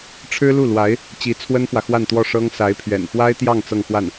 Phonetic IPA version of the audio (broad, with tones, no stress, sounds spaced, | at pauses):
ʈ͡ʂʰ ɻ̩˥ l u˥˩ l w a˧˥ ɪ̯ | t͡ɕ i˧˥ t͡sʰ w ə˥ n f w ä˨ x w a˥˧ n t̪ w ɔ˥˩ ʂ ɤ˥ ŋ s a˧˥ ɪ̯ pʰ ɥ ɛ̰˨˩ n f w a˥ ɪ̯ t̪ j ɑ˥˧ ŋ t͡s ɤ˥˧ ŋ x w a˥˩ n